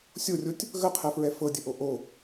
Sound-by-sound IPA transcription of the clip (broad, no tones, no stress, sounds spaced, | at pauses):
sʲ o rʲ o tʲ | ɣ ə qʰ ɛ f ɹ ɛ f ɤ dʲ ə ʔ o ʔ o